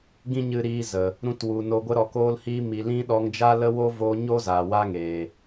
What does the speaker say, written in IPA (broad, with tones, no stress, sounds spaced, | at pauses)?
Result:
ɡ ĩ˦ ɲ ɨ˧ ɾ iː˧ z ə˨ | ɾ ũ˧ t w u˨ n o˧ ɡʷ ə˧ ɾ ɔ˨ k oː˧ l h iː˧ m i˨ l ĩ˧ ɗ ɔ˧ ŋ d͡ʒ a˦ l ə˦ w o˦ v oː˧ ɲ o˦ z aː˨ w a˦ ŋ eː˨